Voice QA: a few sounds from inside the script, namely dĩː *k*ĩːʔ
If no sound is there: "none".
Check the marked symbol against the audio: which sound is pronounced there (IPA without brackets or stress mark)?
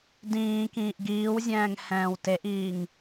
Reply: k